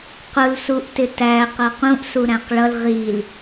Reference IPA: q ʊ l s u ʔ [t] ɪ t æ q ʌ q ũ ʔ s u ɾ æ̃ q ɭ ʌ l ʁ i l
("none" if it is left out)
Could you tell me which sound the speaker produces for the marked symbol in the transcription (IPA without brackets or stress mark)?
t